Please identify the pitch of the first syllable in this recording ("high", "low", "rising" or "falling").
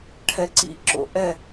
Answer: high